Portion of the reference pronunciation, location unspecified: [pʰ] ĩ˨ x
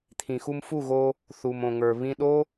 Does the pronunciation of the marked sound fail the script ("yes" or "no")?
yes